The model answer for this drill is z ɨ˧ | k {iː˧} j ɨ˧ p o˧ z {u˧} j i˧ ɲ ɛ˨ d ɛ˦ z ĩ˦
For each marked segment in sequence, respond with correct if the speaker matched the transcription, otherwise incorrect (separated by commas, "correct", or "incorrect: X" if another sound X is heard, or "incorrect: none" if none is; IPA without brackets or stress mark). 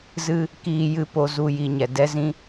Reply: correct, correct